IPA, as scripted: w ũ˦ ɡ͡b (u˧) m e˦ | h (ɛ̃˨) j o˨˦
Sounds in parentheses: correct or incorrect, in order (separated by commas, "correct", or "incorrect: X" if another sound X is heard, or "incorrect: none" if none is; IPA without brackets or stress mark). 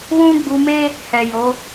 correct, incorrect: ɛ˨